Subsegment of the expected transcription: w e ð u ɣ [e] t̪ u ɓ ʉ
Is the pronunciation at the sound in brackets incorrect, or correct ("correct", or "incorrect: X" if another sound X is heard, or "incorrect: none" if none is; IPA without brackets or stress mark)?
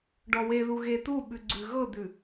correct